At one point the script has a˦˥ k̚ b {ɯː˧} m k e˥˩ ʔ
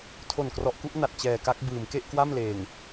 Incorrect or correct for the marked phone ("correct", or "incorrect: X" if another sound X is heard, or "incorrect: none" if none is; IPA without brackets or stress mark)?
incorrect: ɯː˩˦